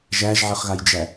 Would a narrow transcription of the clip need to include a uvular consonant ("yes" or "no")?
yes